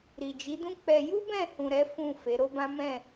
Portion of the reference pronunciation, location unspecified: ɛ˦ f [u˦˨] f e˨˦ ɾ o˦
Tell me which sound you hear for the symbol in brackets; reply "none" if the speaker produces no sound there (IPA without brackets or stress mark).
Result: ũ˦˨